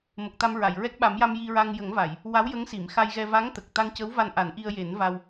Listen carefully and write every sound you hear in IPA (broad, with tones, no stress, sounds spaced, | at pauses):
m ə˨˩ k̚ t̪ a˧ m ɹ a˨˩˨ j ɹ ɛ˦˥ k̚ ɓ a˨˩˦ m j a˧ m j i˧ ɹ a˧ ŋ j ə˨˩˦ ŋ v a˨˩˨ j | w a˧˥ w j ə˧˥ ŋ s i˨˩˨ m x a˧ j ɣ ɛ˧ v a˧˥ ŋ t̪ ə˨˩ k̚ t̪ a˧ ŋ c əː˧˥ w v a˧ n ʔ a˨˩˦ n ʔ i˧ ə̯ j e˨˩˦ n v a˧ w